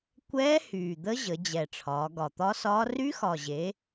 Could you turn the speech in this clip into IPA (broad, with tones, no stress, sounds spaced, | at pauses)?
kʷ ɛː˦˥ h yː˨˩ d̪ ə˦˥ ʑ ə˩˧ d͡ʑ ɛ˨˩ ʈ͡ʂʰ ɒː˩˧ ɡ ɒ˨˩ t̪ ɒ˦˥ s ɒː˦˥ r y˦˥ x ɒ˨˩ ʑ e˩˧